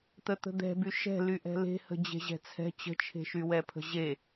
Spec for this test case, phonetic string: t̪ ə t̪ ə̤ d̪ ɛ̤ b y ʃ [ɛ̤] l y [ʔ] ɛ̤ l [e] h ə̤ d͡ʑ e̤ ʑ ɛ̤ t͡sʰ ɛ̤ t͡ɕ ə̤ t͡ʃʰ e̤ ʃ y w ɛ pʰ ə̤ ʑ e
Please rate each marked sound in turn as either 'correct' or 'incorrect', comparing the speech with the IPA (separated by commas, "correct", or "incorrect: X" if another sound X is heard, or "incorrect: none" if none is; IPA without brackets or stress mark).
correct, correct, incorrect: e̤